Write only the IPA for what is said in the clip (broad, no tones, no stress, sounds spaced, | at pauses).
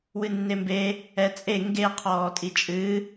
w ɨ nː e m b e | ɛ t͡sʼ e ŋ ɡ e qʰ ɔː tʼ i t͡ʃʼ ɨ